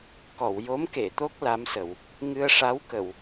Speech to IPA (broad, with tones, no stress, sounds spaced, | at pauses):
k ɔ˨˩˨ w j o˧˥ m k e˨˩˨ t̪ o˦˥ k̚ l a˧˥ m s ə˨˩˨ w | ŋ ɨ˧ ə̯ ʂ a˧˥ w k ə˨˩˨ w